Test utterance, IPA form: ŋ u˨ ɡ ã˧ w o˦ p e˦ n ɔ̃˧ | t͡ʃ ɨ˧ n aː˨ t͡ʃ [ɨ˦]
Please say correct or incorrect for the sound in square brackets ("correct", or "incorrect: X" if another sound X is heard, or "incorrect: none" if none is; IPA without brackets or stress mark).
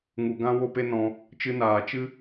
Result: correct